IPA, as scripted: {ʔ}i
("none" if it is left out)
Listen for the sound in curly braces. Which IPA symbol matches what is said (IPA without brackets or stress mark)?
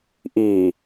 ʔ